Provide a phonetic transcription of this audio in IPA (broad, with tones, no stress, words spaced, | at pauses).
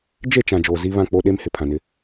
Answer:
d͡ʒe˦˨t͡ʃã˨ d͡ʒoː˨zi˦ βã˦˨k͡po˦ɗe˦mhɪ˨ pʰã˨nɪ˦